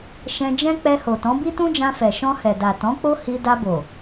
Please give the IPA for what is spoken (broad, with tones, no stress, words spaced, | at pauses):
ʃɛ̃˧d͡ʒɛ̃˦ k͡pɛ˧ho˨tɔ̃˨˦ bi˦tũ˦d͡ʒã˧ fɛ˨ʃɔ̃˧hɛ˨ da˨tɔ̃˨˦k͡po˦ hi˧ da˧bo˨